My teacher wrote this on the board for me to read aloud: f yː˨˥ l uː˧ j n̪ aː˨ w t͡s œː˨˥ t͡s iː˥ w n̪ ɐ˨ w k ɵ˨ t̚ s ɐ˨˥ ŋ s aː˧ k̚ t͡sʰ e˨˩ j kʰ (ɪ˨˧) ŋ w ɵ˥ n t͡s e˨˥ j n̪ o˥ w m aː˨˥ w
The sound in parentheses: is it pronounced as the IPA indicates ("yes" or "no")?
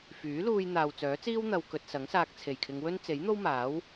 yes